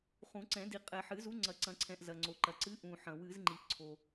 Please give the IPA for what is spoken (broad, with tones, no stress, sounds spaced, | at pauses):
χ ũ˨˩˦ ǀ ɛ̃˨˩˦ d i˨ qʼ ɛ˨ ħ ɨ˨˩˦ z u˨˥ ŋ͡ǀ ɐ˨˩˦ ǀ ɐ̃˨˩˦ ǀʰ ɛ̃˨ ʔ z ɐ˨ ŋ͡ǀ o˨ ǃ ɐ˨ ǀ ɨ˨˥ ʔ ũ˨ ħ ɐ̃˨˩˦ w ɨ˨˩˦ z ŋ͡ǃ i˨ ʔ ǀʰ o˨